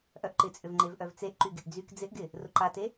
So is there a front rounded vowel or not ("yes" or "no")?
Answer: yes